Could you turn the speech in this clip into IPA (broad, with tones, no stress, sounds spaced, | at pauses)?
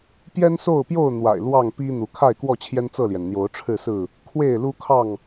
p j ɛ˦ n s o˥˨ ʊ̯ p j o˥˨ ʊ̯ n̪ w a̰˨˩ ɪ̯ l w ɑ˥˨ ŋ p i˦ n̪ u˨˦ kʰ a˥˨ ɪ̯ k w ɔ˥˨ t͡ɕʰ j ɛ˦ n t͡s ɤ˥˨ l j ɛ˩ n n̪ j o˨˦ ʊ̯ ʈ͡ʂʰ ɻ̩˥˨ s ɹ̩˥˨ | kʰ w e˥˨ ɪ̯ l u˦ kʰ ɑ˥˨ ŋ